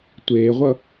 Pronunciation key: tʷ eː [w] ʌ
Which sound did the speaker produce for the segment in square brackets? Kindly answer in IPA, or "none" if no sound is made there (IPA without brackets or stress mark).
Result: ʁʷ